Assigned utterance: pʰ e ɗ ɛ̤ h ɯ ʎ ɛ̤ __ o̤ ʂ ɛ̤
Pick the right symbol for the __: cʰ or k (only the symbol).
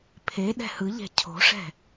cʰ